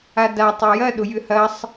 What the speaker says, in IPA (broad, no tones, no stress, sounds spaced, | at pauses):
a d a tˤ y j ɐ ɗ ʊ j ʏ h ɐ sˤ